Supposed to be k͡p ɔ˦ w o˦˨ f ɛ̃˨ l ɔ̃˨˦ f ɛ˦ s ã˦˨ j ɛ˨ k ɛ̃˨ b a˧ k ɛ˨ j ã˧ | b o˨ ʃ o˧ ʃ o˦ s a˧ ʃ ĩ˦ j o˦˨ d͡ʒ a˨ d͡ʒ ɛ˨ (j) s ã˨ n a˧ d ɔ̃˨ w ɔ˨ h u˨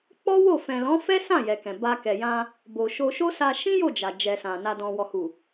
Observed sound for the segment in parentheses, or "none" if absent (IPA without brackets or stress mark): none